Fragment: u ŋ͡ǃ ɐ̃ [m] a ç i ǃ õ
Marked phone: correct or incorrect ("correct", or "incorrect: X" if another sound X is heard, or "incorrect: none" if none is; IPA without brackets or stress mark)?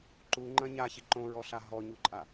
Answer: incorrect: ɲ